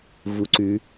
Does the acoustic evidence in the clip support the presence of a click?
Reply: yes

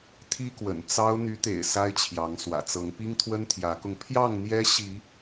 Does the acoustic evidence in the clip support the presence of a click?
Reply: no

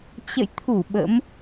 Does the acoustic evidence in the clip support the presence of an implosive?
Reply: yes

